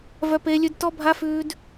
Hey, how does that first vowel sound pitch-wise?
high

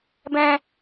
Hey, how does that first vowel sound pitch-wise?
high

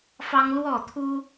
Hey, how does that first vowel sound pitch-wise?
high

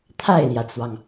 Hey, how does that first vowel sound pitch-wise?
falling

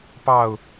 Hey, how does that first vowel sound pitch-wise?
falling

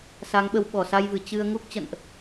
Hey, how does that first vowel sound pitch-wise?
rising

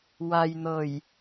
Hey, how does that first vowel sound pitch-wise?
low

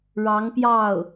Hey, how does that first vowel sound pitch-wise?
rising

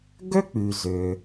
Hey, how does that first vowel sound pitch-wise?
high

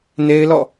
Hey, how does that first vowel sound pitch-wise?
high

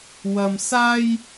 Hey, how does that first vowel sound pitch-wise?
high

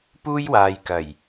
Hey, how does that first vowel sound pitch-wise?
high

